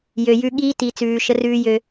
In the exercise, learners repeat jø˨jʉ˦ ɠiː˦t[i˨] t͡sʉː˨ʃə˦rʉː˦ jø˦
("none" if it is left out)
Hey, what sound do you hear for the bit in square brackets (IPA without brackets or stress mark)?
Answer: i˨